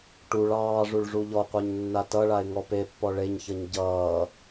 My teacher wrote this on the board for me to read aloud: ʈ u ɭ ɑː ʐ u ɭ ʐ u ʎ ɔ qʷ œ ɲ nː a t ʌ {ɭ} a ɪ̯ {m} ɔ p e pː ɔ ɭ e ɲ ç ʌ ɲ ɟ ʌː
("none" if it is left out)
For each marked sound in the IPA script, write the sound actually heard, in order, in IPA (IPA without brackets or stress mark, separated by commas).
ɭ, ŋ